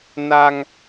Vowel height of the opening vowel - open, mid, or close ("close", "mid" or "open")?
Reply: open